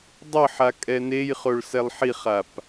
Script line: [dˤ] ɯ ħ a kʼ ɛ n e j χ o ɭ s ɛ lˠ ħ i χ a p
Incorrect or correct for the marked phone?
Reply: correct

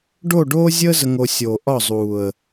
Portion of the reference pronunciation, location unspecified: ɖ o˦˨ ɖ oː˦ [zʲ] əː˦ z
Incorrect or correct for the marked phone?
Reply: correct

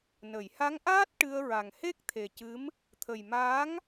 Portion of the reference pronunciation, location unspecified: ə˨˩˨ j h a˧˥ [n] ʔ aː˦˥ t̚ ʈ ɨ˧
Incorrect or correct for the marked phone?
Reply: incorrect: ŋ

